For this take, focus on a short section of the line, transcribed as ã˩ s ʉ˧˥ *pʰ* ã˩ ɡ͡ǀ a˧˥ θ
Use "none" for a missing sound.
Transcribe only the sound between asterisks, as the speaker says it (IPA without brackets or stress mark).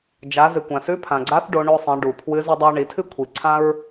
pʰ